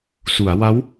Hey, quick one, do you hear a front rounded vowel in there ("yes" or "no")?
no